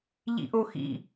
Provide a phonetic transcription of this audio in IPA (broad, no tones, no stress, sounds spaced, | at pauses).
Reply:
ʎ ḭ ʔ o x ḭ